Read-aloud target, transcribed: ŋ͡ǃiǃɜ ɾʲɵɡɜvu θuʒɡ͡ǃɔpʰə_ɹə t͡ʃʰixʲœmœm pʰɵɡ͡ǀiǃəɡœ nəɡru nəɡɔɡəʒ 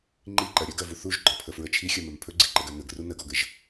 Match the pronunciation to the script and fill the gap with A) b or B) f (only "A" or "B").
B